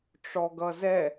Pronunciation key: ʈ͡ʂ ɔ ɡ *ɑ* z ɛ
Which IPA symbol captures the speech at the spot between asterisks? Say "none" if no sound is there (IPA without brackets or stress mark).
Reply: ʌ